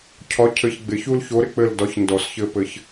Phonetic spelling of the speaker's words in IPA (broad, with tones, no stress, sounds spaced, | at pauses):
cʰ ɒ˨˥ cʰ ɘ˨˩˦ ç ɡ͡b ɪ˨˩˦ ç u˦ l ç o˨˥ ɾ ɪ˦˨ k͡p ɘ˦˨ l d ɒ˨˥ ç n d ɔ˨ s ç ɘ˦ p ɘ˨˥ ç